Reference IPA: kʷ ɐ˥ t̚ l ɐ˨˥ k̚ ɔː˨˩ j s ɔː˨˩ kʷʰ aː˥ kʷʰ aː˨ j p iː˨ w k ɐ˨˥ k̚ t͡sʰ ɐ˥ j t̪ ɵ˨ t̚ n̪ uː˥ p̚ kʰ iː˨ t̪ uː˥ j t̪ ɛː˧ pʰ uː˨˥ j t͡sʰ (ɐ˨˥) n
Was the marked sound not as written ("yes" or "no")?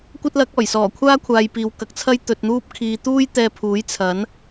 no